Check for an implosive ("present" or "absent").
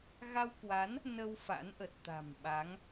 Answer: present